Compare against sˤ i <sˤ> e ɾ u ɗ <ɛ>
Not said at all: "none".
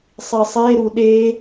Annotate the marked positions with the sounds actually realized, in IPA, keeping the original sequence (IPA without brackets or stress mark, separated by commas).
sˤ, e